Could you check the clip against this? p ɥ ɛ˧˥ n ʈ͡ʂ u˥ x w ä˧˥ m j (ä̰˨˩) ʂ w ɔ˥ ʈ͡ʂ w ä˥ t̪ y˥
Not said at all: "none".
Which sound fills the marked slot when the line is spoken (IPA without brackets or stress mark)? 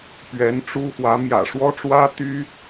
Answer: ä̰˨˩